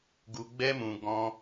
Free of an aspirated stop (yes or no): yes